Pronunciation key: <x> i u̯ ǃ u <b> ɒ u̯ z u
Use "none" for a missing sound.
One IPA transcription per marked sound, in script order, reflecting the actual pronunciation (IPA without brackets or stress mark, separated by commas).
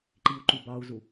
ǃ, b